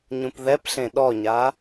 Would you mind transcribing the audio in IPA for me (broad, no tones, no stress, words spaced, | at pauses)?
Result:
ɲũpðɛpɬẽ ɗɔɲa